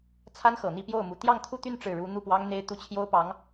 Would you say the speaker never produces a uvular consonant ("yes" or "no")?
yes